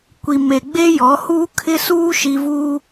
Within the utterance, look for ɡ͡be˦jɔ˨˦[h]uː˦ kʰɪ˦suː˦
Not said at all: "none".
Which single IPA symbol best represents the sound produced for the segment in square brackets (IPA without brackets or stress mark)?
h